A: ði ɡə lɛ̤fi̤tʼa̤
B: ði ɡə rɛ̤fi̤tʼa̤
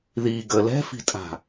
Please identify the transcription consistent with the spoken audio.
A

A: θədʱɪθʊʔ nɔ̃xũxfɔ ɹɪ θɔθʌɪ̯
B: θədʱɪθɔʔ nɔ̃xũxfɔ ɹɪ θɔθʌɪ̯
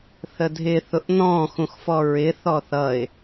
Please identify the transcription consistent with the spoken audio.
A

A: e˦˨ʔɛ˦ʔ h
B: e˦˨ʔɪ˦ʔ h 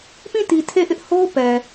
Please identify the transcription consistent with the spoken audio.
B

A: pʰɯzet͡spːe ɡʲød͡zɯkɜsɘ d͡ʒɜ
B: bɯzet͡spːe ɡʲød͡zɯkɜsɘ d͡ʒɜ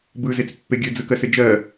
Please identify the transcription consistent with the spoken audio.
B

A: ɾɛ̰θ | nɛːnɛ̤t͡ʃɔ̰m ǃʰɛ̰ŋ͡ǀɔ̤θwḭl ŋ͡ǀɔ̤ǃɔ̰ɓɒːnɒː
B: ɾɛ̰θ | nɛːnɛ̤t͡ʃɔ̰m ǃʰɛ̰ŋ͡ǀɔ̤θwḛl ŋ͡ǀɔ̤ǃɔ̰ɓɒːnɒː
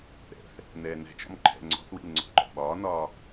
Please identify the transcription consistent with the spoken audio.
A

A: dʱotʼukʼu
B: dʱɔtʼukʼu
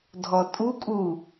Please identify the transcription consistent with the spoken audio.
B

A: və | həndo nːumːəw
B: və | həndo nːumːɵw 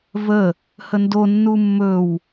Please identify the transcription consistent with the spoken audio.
B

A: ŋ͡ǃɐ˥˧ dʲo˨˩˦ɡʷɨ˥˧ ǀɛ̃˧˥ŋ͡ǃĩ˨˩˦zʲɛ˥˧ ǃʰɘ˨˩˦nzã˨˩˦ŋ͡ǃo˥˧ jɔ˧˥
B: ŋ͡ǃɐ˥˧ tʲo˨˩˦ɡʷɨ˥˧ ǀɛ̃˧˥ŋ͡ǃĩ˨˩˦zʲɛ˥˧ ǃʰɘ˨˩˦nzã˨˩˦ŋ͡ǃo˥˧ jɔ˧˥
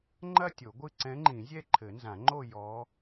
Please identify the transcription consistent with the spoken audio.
B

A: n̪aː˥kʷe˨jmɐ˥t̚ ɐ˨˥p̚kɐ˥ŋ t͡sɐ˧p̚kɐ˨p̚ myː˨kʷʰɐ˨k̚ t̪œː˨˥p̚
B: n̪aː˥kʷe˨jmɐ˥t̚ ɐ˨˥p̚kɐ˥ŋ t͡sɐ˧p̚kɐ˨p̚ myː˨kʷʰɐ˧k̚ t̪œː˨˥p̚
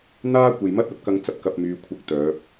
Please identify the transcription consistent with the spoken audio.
B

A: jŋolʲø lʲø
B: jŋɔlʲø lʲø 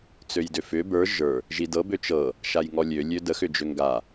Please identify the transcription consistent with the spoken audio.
B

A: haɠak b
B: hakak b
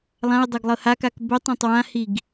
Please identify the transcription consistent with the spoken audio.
B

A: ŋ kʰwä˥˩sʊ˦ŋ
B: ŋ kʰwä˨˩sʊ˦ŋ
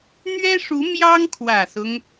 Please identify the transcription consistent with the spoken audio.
B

